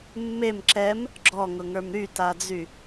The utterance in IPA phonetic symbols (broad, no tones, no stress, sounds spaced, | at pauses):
mː e m ǁ ɛ m | ɡ͡ǁ ɔ ŋ ʊ ŋ ə˞ m ɾ y t a d͡z y